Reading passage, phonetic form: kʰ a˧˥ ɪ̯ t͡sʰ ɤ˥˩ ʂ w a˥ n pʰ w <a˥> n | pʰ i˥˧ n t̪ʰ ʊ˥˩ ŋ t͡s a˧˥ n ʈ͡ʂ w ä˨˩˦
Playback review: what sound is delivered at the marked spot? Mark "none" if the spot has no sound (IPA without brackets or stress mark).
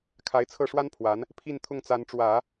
a˧˥